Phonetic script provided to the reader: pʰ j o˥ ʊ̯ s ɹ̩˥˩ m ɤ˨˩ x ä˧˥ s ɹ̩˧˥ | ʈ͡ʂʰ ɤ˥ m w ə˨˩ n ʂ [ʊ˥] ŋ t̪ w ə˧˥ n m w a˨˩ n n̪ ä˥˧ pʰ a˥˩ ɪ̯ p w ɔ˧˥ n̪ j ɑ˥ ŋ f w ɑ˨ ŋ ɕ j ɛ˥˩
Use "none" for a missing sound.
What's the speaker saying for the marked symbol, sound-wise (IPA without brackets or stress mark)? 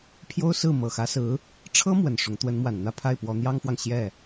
ʊ˧˥